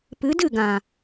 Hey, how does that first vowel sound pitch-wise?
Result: rising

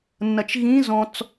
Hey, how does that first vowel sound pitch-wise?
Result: low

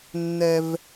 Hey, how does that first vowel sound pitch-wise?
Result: high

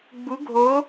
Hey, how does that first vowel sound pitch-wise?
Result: rising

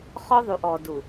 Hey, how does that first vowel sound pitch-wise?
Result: high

